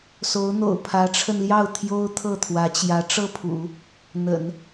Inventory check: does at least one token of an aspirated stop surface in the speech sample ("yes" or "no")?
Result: yes